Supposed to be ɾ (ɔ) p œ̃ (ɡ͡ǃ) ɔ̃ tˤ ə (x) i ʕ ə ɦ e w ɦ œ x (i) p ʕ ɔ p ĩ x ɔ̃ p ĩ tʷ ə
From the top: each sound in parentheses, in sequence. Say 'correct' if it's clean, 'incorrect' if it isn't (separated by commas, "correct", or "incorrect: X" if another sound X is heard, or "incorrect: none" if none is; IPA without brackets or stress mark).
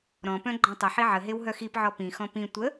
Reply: incorrect: ɔ̃, correct, incorrect: ħ, correct